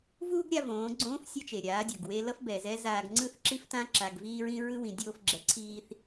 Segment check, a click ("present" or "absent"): present